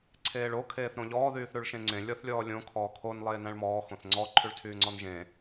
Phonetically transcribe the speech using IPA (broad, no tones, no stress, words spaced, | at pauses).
ǀʰeːɭo kʰeːθɾõʎɔː ðyːθɾʉɭʃẽŋ͡ǀẽ lʲɔθlʲɔːlʲõ kʰɔːkʰon lˠeːnæ̃ɭmɔː xõθŋ͡ǀɔ ǃʰʉɭtʰyːŋ͡ǀɔnʒẽ